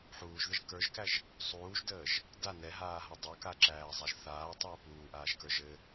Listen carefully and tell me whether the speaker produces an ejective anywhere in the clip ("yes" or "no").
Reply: no